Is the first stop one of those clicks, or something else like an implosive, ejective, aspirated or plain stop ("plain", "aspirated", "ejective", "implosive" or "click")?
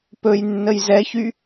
plain